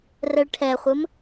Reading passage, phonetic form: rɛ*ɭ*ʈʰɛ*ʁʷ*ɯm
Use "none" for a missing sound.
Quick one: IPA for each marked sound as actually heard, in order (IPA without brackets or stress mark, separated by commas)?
ɭ, χʷ